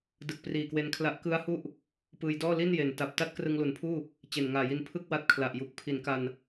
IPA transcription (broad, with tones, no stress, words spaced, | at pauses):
dɯ˨˩k̚priː˨˩kwe˧nkʰla˦˥ʔ kɯ˦˥a̯hu˥˩ʔ | pɯː˧jdɔː˥˩ li˥˩nje˩˦nta˨˩p̚ ta˥˩t̚krɯ˧ŋlu˩˦npʰuː˥˩ | t͡ɕe˨˩nŋaː˨˩ji˧n pʰɯ˥˩k̚wa˦˥t̚kʰla˨˩ʔju˨˩k̚ pʰi˩˦nka˧n